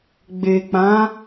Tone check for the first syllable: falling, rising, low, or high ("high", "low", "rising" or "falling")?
low